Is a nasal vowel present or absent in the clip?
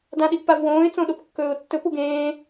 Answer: present